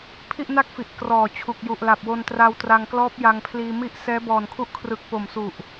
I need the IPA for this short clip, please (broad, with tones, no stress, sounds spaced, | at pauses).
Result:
pʰ i˥˩ ʔ n a˥˩ k̚ f i˨˩ ʔ k r ɔː˨˩ t͡ɕʰ u˨˩ k̚ j u˨˩ ʔ l a˨˩ p̚ w o˧ n t r a˧ w t r a˧ ŋ k l ɔː˦˥ p̚ j a˧ ŋ pʰ l iː˧ m i˥˩ ʔ s ɛː˦˥ b ɔː˨˩ n kʰ u˦˥ ʔ kʰ r ɯ˨˩ k̚ p o˨˩ m s u˨˩ ʔ